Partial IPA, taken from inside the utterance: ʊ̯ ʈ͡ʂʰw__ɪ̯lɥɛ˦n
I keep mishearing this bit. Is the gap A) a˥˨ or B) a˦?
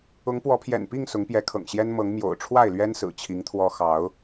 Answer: A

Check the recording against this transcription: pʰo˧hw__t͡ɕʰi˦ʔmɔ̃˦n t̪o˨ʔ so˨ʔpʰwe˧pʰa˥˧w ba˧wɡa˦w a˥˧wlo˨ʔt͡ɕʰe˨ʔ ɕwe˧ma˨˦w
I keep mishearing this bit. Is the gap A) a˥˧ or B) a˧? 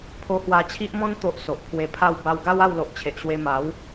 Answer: B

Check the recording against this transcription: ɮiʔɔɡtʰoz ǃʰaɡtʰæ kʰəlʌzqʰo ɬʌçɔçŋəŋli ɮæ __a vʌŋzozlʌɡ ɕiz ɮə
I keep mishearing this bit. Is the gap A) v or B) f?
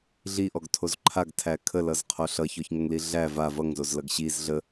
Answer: A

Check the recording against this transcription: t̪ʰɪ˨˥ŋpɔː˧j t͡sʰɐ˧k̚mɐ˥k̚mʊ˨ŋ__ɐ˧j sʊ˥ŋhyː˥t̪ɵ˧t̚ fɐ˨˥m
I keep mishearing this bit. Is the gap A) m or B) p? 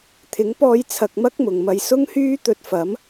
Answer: A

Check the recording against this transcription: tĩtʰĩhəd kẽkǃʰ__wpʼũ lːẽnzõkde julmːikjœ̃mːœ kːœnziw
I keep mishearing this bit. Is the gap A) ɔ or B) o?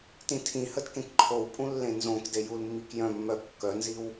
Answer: B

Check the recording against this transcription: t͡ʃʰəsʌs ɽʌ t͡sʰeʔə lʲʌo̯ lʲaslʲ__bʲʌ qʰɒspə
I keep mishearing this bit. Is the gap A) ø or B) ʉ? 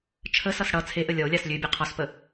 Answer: A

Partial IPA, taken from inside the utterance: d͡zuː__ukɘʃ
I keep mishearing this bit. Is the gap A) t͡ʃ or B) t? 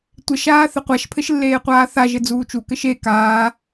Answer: A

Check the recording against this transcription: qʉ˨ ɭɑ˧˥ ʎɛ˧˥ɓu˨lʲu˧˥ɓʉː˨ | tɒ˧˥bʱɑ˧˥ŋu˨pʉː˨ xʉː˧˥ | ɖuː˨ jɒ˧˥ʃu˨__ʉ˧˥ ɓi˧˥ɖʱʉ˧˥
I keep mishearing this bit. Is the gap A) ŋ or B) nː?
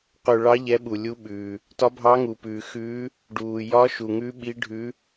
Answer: A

